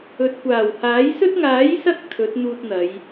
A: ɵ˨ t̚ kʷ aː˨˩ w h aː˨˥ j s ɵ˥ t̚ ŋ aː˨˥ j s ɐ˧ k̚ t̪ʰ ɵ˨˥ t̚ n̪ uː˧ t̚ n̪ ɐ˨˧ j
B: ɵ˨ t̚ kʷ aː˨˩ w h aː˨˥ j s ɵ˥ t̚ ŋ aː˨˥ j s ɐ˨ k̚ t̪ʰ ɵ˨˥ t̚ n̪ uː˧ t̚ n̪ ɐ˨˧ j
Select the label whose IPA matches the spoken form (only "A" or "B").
A